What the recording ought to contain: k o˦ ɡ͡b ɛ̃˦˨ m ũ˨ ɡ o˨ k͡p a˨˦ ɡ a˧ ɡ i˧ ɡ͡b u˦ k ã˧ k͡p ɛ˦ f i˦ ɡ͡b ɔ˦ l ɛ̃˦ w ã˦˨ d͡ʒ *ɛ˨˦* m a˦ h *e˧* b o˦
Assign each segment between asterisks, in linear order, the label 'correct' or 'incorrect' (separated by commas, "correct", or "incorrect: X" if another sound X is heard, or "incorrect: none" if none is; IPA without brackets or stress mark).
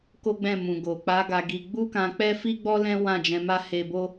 incorrect: ɛ̃˨˦, correct